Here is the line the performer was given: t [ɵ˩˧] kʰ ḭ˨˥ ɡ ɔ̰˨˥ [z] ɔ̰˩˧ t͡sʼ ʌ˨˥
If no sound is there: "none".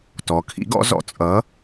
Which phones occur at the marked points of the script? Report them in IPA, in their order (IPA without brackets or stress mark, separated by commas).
ɔ˩˧, z